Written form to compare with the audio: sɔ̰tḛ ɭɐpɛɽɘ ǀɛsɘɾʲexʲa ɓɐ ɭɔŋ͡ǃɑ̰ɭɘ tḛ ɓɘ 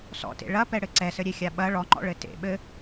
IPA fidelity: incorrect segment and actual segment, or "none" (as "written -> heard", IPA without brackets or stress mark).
ɑ̰ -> ɔ̰